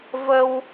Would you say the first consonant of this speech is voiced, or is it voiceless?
voiced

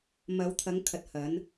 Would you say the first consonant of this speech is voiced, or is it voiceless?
voiced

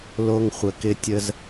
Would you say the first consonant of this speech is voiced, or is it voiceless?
voiced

